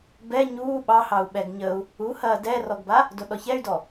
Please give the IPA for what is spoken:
b ɛ ɲ uː ɓ ɑ h ɑ u̯ ɓ ɛ ɡ ɲ ə u̯ | u h ɐː d ɛ r ɔ ɡ b a | d o ɗ ɔ ç ɛ y̯ d ɔ

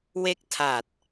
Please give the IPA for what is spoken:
w e˥˩ k̚ tʰ a˨˩ t̚

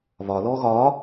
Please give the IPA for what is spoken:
β ɒ l ɔː ɣ ɒː

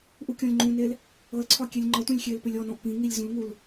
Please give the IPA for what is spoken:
ʔ u kʲ ɔ̃ lʲ ŋ͡ǃ ũ n e l | ɤ l ǀʰ ɒ kʲ e lʲ ŋ͡ǃ ɒ tʷ ə̃ lʲ xʲ e l p ʏ lʲ ɔ n ɔ̃ ʔ p ĩ ŋ i lʲ z ũ l ŋ u l

